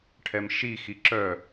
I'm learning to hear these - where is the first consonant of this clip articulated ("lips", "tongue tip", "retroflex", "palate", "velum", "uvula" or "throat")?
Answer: retroflex